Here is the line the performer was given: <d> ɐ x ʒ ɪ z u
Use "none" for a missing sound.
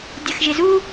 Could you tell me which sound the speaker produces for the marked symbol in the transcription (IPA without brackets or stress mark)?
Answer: dʲ